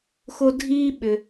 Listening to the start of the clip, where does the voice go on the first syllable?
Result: high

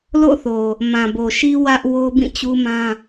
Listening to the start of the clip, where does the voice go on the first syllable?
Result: falling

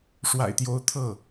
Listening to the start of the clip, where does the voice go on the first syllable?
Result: low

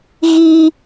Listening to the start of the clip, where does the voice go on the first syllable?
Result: high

